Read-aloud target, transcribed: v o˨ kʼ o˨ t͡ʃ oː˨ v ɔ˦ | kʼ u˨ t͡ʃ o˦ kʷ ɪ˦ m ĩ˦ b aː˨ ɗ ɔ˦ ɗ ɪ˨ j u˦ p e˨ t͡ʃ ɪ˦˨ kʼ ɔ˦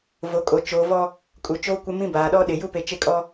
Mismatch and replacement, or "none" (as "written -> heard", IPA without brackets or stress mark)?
none